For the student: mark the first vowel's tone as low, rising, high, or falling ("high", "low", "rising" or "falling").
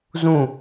falling